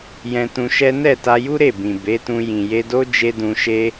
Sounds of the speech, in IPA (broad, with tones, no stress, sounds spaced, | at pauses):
j ɛ̃˧ t ũ˧ ʃ ɛ˦ n ɛ˦˨ t a˧ j u˦ ɾ e˦˨ b ĩ˨ b e˨˦ t ũ˧ j ĩ˨ j e˧ d o˦ d͡ʒ e˦ d ũ˧ ʃ e˦